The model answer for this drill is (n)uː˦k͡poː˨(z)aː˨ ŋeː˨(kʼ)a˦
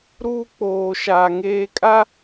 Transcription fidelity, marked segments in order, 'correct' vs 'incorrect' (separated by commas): incorrect, incorrect, correct